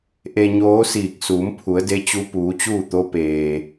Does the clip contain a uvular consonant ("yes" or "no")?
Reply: no